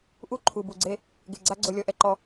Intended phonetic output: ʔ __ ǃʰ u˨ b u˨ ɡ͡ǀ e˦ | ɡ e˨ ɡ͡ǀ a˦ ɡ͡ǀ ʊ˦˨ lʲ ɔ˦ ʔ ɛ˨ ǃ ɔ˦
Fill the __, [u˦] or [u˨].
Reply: u˦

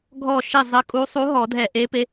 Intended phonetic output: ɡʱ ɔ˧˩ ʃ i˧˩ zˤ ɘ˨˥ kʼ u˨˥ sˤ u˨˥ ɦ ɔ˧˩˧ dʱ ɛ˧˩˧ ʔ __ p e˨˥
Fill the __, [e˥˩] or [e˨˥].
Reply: e˨˥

